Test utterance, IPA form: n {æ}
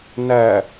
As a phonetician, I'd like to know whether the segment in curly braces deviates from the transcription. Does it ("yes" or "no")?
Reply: no